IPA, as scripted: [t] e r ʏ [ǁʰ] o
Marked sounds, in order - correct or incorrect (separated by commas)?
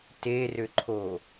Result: correct, incorrect